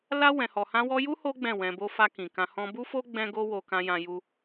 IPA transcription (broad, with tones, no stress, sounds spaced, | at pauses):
l a˧ w ɛ̃˨ h ɔ˨ h ã˧ w ɔ˧ j u˦ h o˦ ɡ͡b ɛ̃˦˨ w ɛ̃˧ b o˦ f a˧ k ĩ˨ k ã˧ h ɔ̃˦ b u˦ f o˦ ɡ͡b ɛ̃˦ ɡ o˦ w o˧ k ã˧ j ã˧ j u˧